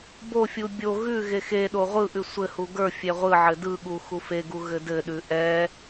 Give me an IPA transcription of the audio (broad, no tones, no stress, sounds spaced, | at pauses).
b o fʲ u bʲ o ɣ ʉ ɣ e x e ɗ o ʁʷ ɯ ʔ ʉ sʷ ɘ h u ɡ ə˞ fʲ ɛ ʁʷ ɯ ʕ ɘ d ɯ ɠ u x u f e ɡ u ɣ ɘ d ɘ ɗ ʉ ʔ ɛ